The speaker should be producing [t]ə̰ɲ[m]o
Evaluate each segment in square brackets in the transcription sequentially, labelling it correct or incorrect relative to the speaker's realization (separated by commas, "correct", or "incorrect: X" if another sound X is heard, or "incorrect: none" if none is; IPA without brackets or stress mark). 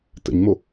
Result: correct, correct